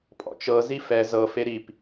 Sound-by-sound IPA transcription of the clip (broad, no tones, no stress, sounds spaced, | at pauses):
pʼ ɔ̰ t͡ʃ ɤ z i f ɛ z ɤ f e ɾ i p